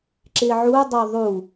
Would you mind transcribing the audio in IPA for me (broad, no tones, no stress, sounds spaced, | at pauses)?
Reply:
ǁ ɪ ʕ u dˤ ɵ ðˤ u